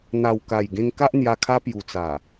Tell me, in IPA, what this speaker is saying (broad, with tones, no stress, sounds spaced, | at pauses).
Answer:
n̪ a˨˩ w k a˨˩ j ɡ ẽ˧ ŋ k a˦ ʔ n̪ j a˧ kʰ a˦ p j u˨˩ t͡s a˨˩